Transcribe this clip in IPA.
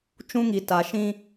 t͡ʃ ũ˦ ŋ i˨ t a˨ ʃ ĩ˦

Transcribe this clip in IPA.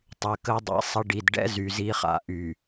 tˤ y˨ k ə˦ dˤ ɛ̰˨ sˤ ə˦ ɖ i˨ d ɖ ɛ̰˦ z y˨ z i˦ χ a̰˨ ʔ y˨

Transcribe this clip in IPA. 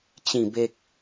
t͡ɕ ĩ˨˩ b e˨ k̚

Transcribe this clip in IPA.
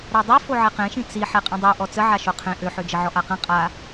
ɾ a dˤ y f o ʕ e q ẽ ʃ ĩ t͡s i ħ e qʼ ĩ dˤ o ʔ ɔ t͡s ə ʕ a ʃ o qʰ ẽ ʔ ø ħ ø d͡ʒ ə ʕ ɔ ʔ a q ẽ qʼ a

